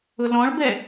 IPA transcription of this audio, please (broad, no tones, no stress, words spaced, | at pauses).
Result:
ʊlɔ̃ɭbɛ